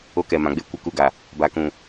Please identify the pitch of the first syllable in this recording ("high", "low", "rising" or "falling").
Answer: high